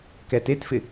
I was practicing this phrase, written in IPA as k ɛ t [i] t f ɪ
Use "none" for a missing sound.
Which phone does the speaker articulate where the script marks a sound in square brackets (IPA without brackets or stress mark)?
e